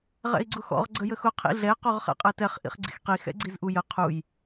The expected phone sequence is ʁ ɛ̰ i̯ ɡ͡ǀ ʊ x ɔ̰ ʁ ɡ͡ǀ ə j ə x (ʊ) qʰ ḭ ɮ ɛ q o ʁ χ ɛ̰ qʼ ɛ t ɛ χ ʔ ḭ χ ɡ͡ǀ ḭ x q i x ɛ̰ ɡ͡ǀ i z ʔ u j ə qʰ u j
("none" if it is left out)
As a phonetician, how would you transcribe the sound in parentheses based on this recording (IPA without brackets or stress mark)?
ʊ